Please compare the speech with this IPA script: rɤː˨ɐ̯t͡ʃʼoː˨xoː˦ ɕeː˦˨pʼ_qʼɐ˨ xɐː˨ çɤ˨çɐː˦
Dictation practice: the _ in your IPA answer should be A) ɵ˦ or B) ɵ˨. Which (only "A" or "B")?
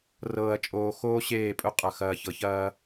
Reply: A